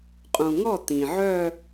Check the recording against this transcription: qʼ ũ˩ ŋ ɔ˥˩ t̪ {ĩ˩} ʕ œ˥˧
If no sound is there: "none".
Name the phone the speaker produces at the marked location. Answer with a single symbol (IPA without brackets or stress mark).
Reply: ĩ˩